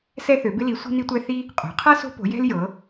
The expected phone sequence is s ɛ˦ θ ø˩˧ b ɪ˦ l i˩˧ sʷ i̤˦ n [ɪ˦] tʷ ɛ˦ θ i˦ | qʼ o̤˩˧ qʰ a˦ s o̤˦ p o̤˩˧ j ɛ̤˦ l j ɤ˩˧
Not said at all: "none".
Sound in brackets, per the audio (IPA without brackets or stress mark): i˦